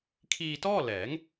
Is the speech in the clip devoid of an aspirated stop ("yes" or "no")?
no